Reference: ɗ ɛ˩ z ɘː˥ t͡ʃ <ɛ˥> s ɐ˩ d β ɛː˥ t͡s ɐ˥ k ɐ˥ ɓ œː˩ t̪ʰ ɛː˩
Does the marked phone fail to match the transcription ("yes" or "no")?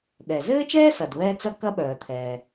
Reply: yes